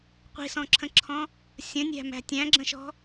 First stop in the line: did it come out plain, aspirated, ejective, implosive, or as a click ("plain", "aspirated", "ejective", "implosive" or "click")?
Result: plain